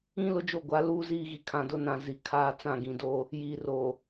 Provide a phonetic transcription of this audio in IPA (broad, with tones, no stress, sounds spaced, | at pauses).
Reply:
ĩ˦ l ʊ˦ d͡ʒ o˦˨ ɡʷ a˨˦ l uː˦ z iː˦ ɣ i˨ kʰ ã˨ d ʊ˦ n ã˨ z i˨ kʰ aː˦ t͡s ã˦˨ ɡ ĩ˨ d oː˦ | j iː˨ r oː˨